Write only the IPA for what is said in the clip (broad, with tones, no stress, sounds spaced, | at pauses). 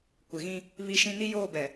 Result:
kʷ ɪ˨ ɣ ĩ˦ | β i˦ ʃ ĩ˦ n i˦ j oː˦˨ b ɛ˨